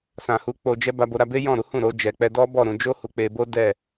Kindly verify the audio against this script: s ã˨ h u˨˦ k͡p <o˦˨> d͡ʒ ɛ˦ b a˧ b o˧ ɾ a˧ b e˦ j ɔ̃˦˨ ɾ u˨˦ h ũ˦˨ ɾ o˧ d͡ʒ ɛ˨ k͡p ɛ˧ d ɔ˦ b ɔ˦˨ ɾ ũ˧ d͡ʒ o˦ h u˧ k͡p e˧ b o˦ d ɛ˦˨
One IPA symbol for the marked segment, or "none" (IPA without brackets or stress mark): o˧